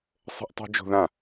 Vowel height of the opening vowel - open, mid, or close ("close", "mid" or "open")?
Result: mid